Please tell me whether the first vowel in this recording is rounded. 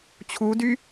yes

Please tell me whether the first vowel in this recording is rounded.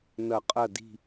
no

